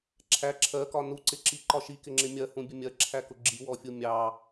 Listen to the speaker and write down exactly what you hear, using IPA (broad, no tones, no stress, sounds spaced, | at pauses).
ǁʰ æ ǁʰ ɜ k ɒ n u ǀ ɪ ǁ i ǃ ɒ ʃ i k ɪ ŋ͡ǁ ɪ mʲ ɜ h ũ bʲ ə mʲ ɜ ǁʰ æ k ʊ ɡ͡ǁ i w ɔ fʲ u mʲ ɑ